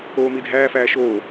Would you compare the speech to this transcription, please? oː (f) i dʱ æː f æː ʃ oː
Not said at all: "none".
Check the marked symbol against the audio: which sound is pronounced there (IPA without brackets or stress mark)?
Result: m